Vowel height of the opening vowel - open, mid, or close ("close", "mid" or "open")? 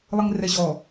close